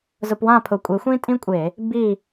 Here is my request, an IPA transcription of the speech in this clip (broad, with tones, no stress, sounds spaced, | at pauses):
z ʊ˧˩˧ p w ã˦˨ pʰ ʊ˨˩ kʷʼ e˨˦ xʷ ĩ˥ tʼ ĩ˥ kʷʼ e˧˩˧ | b i˦˨